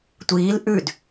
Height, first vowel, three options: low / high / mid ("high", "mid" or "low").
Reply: high